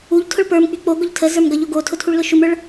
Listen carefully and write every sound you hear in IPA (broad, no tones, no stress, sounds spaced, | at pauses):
u ʎ tʰ ʊ ɭ p ə˞ m k͡p y k͡p o ɡ ʊ ʎ tʰ ə z ə˞ m ɡ ʌ ʎ o ɡ o tʰ ʊ tʰ u ɭ l ʊ ʃ u m ə˞ ɭ